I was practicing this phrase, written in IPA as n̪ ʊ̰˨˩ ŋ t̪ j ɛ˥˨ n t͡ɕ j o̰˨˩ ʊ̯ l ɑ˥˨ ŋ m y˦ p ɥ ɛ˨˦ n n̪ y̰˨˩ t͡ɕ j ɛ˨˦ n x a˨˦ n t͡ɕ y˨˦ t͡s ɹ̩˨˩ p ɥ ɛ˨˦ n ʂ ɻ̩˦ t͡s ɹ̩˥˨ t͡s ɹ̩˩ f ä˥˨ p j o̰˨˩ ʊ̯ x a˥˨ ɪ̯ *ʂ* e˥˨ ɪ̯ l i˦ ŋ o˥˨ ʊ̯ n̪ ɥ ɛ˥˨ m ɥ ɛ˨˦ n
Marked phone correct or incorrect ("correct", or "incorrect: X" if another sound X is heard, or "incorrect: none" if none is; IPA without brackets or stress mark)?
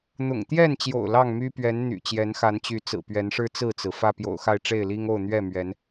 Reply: incorrect: ʈ͡ʂ